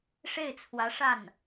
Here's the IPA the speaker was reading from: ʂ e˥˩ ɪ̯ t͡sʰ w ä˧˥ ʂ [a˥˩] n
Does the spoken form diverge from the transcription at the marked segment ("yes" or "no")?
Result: no